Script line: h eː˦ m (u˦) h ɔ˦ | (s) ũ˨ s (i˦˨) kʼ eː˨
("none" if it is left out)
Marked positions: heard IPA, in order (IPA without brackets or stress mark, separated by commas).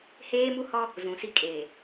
u˦, z, i˦